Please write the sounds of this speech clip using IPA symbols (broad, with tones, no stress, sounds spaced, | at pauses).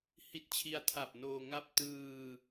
h i˦˥ t̚ t͡ɕʰ i˧ a̯ tʰ a˨˩ p̚ n oː˧ ŋ a˥˩ p̚ t ɯː˧